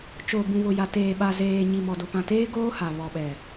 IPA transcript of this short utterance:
t͡ʃ o˨ b ũ˨ β ʊ˨ j a˨ t eː˨ ɓ a˨ z eː˨ ɲ i˨ m ɔ˨ d o˨ p ã˨ t eː˦ ɡ oː˦ h a˨ β ɔ˨ ɓ ɛ˨

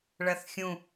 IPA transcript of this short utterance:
ɭ ɐ θ xʲ ũ

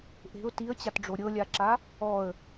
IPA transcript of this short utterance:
ʔ e̤ ʊ̯ t i ə̯ t͡ɕ a t ɖ͡ʐ o ɾʲ ɤ lʲ a ǁ a | ɔ ə̯

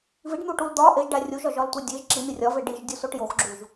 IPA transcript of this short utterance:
v i ɖ n̪ u ʈ u l d̪ ɒ ʔ e ʒ ɖ æ rʲ u ʒ ɒ ʒ ɒ l tʷ e dʲ e ʒ ǁ i n̪ i rʲ ɒ v e ɖ i ʒ dʲ u s o ʈ j o x ɡ͡ǁ u ʒ

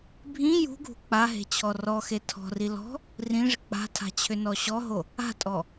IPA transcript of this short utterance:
bʱ ĩ j ṳ ɡʱ ṳ k͡p a ɦ e̤ t͡ɕʰ ɔ r ɔ x e tʰ ɔ̤ r i l ɔ̤ | r ĩ ʐ ɪ k͡p a̤ tʰ a̤ t͡ɕʰ ʏ n ɔ ɕ ɔ ɦ o | a̤ tʼ ɔ

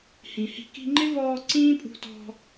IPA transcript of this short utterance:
h ĩ˨ h i̤˧ k i̤˧ ŋ͡ǃ ɪ˦ v ɔː˧ ǀ ĩː˦ pʼ ṳ˧ t ɔ̤˧

